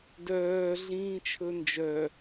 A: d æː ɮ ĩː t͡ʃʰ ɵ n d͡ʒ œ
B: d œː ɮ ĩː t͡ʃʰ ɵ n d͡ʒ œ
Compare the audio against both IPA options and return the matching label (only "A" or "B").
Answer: B